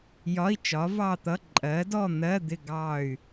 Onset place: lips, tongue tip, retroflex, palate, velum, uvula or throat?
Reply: palate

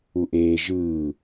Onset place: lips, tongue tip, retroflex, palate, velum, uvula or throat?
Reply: throat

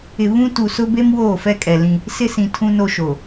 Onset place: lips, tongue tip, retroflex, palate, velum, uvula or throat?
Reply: lips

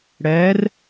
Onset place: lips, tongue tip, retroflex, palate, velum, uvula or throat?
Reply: retroflex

